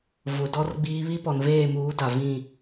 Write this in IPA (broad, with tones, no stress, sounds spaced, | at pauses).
v ʊ˨ d ɔ˦ r ɡ͡b iː˦ β i˦ p ɔ˨ n v eː˦˨ m uː˨˦ d a˨ v ĩ˦˨